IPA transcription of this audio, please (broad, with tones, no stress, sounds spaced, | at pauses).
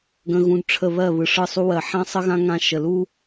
ɡ ə̃˧ ɣ ũ˧ d ʈ͡ʂʰ ə˦˨ β ɜ˦˨ β ɯ˨ ʂ ɯ˦˨ sˤ u˦ w ɜ˨ ħ ã˦ sˤ ə˦ ɣ ã˦ ŋ ã˧ ʃ ə˨ l u˦